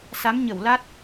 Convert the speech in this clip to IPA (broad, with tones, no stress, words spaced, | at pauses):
sa˨˦mɲə˧˩wla˦˥t̚